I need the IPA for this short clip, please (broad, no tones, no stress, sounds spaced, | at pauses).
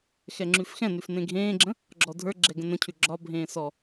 x ɛ ŋ͡ǁ ʉ f x ɛ̃ n ʉ f n ẽ ɡʱ ẽː ɡ͡ǁ ə̃ | ɡ͡ǁ ɔ dʱ ə˞ ɡ͡ǁ ɛ ɡ ə̃ n ə̃ cʰ ʉ ɡ͡ǁ ɒ bʱ ẽː s ɔ